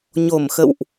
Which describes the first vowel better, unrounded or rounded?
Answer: rounded